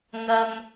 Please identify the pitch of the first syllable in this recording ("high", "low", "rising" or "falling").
low